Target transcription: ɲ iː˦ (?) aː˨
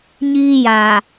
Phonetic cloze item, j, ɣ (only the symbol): j